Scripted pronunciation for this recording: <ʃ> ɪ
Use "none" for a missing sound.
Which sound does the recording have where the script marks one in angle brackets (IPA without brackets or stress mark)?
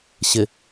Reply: ɕ